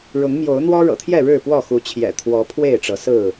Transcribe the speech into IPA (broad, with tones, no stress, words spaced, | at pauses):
ɻʊ˨˦ŋmjo˨˦ʊ̯ n̪wɔ˦ɻɤ̰˨˩t̪ʰjɛ˥˨ ɻɻ̩˥˨ pwɔ˥˨xu˨˦t͡ɕʰjɛ̰˨˩ t̪ʰwɔ˨˦ pʰwe˥˨ɪ̯ʈ͡ʂɤ˨˦sɹ̩˥˨